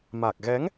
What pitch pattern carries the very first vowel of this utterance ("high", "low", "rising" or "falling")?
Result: low